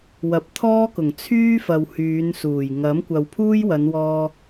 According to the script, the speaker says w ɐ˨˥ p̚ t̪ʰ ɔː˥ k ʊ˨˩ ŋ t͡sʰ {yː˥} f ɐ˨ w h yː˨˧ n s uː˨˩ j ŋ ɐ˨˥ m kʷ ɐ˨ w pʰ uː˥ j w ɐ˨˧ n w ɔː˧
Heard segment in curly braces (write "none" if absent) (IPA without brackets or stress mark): yː˥